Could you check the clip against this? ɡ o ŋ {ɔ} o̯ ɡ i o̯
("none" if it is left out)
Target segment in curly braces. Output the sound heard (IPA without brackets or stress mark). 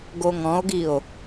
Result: ɔ̃